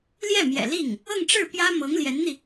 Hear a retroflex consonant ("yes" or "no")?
yes